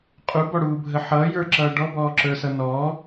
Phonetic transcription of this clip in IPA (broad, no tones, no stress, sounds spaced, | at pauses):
qʼ u b ɔ ɽ uː bʱ ə ħ ʌː j ə˞ ǁ ʌː ɖ ɔ b ɔː ǁ ə˞ s ʌ n ɔ